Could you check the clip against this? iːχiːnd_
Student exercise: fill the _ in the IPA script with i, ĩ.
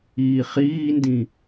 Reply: ĩ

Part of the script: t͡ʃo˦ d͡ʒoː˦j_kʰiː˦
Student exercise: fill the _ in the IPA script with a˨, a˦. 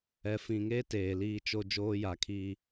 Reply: a˨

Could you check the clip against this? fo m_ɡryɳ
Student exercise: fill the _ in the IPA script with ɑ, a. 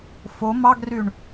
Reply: ɑ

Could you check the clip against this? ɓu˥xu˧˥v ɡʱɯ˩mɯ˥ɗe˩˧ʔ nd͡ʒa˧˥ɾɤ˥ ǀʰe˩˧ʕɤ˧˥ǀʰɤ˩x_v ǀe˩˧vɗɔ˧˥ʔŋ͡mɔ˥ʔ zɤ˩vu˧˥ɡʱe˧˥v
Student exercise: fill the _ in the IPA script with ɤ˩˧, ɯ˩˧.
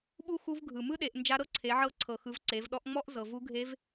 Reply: ɯ˩˧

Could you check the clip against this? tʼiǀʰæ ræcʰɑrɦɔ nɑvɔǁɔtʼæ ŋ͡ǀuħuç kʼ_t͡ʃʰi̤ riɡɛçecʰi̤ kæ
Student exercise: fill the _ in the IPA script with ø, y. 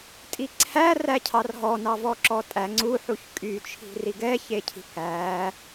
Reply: y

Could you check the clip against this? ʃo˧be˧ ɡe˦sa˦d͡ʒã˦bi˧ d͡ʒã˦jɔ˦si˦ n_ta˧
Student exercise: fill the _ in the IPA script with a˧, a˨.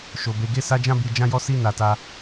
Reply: a˧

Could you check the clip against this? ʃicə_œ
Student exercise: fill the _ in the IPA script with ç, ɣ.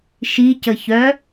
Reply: ç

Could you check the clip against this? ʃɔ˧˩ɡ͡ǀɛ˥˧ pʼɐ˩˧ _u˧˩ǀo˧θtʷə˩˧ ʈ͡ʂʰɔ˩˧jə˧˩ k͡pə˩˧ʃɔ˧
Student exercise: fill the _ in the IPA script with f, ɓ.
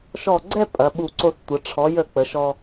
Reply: ɓ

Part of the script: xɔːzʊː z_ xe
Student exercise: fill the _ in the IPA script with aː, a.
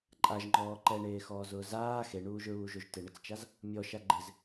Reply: aː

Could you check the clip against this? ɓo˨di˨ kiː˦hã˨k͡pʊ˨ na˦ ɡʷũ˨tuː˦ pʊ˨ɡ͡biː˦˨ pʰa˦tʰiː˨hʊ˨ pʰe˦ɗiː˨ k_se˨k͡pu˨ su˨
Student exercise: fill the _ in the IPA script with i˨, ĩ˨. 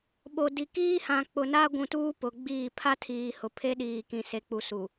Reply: ĩ˨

